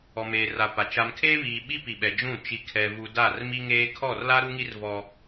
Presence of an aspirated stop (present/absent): present